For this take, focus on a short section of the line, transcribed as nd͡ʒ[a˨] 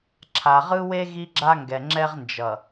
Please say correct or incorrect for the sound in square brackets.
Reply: incorrect